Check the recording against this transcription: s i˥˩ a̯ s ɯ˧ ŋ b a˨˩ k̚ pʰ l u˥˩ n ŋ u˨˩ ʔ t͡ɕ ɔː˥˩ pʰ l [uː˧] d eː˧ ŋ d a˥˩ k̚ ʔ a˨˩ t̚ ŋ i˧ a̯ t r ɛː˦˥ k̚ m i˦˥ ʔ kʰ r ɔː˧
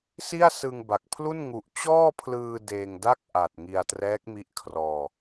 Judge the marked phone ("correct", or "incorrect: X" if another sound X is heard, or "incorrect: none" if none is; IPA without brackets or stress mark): incorrect: ɯː˧